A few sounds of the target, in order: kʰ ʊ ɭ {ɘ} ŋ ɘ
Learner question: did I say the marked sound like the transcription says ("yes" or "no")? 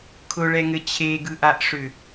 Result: no